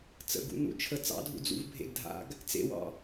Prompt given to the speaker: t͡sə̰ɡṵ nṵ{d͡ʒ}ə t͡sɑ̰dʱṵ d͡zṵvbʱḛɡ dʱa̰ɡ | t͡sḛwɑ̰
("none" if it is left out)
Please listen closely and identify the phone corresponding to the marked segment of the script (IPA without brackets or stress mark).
t͡ʃʰ